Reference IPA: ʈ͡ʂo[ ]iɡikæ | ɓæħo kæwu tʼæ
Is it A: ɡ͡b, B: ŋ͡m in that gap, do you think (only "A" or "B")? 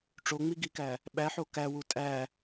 B